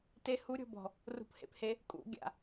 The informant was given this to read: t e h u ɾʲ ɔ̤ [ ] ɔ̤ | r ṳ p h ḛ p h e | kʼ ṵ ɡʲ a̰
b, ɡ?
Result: b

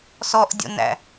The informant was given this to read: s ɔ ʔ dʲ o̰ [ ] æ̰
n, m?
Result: n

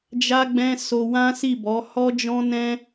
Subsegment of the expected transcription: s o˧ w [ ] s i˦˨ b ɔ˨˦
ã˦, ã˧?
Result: ã˦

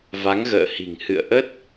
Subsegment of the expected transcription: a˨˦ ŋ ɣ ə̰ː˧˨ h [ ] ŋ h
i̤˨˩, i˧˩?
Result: i̤˨˩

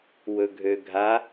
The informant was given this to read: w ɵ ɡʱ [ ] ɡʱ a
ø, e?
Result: ø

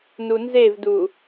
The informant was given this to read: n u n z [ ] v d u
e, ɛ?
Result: e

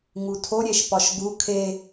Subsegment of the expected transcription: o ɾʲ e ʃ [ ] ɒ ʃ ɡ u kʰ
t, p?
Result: p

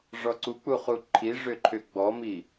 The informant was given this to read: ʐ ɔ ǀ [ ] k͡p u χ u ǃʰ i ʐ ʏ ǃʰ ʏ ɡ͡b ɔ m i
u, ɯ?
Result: u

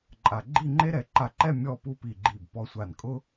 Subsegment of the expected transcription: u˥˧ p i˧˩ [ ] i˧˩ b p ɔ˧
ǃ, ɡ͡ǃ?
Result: ɡ͡ǃ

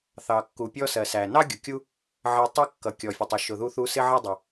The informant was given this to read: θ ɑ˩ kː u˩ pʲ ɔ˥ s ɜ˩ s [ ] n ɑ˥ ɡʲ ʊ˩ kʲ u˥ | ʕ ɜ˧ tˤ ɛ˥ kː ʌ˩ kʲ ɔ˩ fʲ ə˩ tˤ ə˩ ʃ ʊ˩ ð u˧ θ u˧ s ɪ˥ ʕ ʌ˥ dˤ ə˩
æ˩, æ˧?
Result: æ˩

